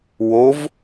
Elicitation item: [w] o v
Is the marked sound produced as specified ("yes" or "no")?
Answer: yes